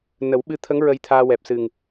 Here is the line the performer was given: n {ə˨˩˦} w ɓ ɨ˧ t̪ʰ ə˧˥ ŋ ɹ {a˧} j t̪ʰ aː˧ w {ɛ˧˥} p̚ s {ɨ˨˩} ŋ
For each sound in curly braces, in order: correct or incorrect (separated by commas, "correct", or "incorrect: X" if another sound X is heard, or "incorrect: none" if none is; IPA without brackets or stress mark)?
correct, incorrect: ə˧, incorrect: ɛ˨˩, correct